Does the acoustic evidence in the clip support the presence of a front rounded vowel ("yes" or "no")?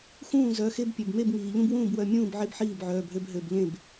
yes